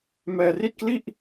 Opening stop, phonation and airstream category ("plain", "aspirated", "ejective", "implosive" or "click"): plain